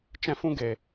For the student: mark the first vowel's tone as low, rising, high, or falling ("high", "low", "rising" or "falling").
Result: high